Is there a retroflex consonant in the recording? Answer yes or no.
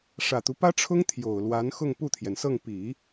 yes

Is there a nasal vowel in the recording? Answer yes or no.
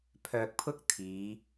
no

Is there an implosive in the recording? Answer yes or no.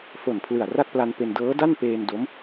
no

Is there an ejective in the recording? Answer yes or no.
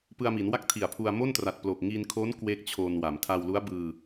no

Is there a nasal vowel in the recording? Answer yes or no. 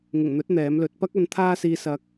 no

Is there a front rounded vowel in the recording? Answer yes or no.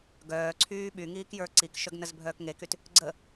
yes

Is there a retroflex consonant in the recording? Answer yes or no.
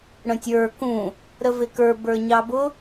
yes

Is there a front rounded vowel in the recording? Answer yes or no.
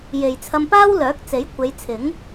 yes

